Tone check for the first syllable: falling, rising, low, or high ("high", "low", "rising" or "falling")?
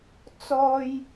high